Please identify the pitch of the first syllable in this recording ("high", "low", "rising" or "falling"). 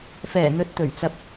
low